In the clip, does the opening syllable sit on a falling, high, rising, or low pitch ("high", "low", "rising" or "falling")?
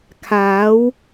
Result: rising